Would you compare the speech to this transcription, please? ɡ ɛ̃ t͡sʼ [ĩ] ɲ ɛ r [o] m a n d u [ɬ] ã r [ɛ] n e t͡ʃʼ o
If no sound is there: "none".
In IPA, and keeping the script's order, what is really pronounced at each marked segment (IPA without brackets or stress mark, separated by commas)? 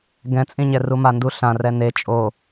ĩ, u, ɬ, ɛ